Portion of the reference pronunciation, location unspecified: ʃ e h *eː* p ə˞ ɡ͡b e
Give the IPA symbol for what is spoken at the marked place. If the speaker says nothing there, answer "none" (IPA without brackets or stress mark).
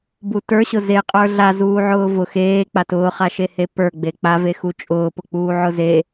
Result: e